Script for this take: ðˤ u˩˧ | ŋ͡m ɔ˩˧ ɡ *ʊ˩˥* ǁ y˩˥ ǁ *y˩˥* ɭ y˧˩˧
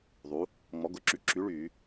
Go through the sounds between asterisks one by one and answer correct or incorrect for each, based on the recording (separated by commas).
correct, correct